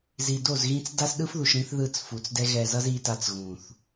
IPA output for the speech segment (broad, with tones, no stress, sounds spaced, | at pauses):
z i˨ d o˦˨ z ɣ ĩ˦ t͡s d a˦ s ɗ ɯ˦ f ð u˨ ʃ ɾ ĩ˦ θ ð ɯ˦˨ t͡s f u˨ t͡s d ɛ˦ ɣ ɛ˨ z ʌ˦ z i˦ t a˦ t͡s ɣ ũ˨ θ